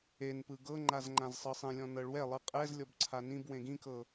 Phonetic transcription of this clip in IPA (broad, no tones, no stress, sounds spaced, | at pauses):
e n p ɯ ɡ ɤ ŋ͡ǃ a z ŋ͡ǃ ã z sˤ ɤ sˤ ẽ lʲ ɔ̃ n ɤ ɭ w ɛ lˠ ɯ qʼ ɛ z lʲ ɔ b ǀʰ a n ĩ b w ẽ ɡ ĩ k ɤ